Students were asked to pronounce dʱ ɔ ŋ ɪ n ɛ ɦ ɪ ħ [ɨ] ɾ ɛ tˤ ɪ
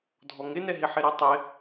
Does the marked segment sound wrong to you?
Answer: yes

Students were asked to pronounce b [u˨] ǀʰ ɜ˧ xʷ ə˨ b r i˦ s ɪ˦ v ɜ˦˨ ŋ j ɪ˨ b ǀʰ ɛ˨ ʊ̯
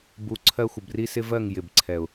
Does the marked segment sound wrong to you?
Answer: no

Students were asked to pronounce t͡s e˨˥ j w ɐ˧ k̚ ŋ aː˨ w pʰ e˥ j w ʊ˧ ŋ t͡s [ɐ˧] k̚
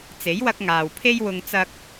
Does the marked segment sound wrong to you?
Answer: no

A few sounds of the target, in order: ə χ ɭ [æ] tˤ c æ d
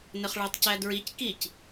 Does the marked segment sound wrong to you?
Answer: no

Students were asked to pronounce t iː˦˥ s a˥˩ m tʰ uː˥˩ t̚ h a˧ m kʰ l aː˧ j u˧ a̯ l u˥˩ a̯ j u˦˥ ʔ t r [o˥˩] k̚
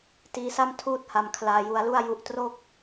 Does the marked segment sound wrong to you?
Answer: no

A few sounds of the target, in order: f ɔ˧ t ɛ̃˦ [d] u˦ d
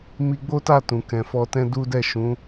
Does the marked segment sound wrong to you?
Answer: no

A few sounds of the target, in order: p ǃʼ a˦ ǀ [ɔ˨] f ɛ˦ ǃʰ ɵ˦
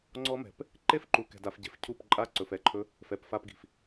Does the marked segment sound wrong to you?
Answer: yes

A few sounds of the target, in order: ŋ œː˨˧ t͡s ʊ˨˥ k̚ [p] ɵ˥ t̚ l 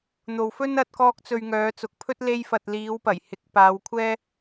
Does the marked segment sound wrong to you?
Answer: yes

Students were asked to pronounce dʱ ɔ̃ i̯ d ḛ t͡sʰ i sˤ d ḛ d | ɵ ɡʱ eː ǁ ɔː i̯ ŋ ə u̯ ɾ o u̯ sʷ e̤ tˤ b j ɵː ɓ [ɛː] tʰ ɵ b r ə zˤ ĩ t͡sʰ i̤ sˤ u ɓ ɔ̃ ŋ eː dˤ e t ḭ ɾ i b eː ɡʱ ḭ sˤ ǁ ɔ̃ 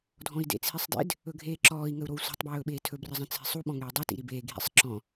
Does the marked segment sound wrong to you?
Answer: yes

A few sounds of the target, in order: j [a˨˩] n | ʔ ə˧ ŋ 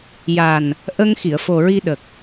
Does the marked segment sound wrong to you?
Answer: no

